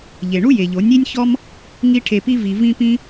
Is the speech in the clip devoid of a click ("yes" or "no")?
yes